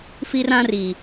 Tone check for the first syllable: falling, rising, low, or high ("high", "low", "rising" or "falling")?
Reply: high